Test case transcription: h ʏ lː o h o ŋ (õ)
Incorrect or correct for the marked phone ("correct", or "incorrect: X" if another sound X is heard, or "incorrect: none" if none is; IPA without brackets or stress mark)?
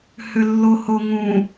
incorrect: ũ